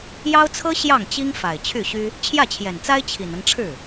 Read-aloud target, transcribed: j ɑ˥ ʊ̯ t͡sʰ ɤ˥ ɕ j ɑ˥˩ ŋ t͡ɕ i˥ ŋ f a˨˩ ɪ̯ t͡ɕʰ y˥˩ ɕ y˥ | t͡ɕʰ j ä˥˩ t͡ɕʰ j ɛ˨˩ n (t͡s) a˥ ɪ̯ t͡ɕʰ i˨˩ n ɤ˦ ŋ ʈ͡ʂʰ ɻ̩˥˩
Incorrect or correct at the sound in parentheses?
correct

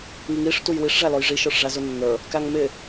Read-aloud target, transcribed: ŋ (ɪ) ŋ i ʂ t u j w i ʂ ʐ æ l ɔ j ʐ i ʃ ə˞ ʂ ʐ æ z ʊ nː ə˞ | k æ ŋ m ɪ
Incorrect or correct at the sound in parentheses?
incorrect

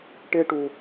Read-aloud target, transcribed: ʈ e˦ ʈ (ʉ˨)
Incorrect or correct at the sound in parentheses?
incorrect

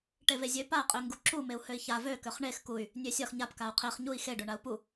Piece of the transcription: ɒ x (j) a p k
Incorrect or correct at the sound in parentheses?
incorrect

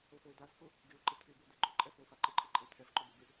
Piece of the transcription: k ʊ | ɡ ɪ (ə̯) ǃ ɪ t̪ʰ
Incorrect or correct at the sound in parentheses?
incorrect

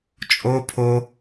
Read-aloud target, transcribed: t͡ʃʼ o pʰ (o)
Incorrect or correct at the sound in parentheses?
correct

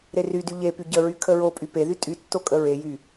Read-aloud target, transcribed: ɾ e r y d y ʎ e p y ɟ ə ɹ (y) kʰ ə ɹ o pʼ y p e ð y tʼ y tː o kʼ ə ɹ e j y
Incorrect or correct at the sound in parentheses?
correct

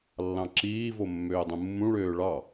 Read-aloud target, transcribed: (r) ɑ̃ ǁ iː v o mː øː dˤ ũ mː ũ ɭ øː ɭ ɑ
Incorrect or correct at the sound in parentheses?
incorrect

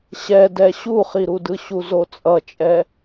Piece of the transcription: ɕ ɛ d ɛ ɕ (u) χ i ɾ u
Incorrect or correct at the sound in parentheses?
correct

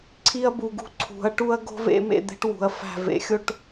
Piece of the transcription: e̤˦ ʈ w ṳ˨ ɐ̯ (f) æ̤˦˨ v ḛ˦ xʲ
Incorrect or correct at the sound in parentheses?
correct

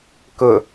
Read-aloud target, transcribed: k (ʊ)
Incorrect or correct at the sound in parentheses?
correct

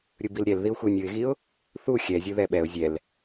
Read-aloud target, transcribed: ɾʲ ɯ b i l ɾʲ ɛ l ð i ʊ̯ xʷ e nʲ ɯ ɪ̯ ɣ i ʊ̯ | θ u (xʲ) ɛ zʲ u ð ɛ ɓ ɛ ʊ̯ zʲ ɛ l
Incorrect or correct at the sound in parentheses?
correct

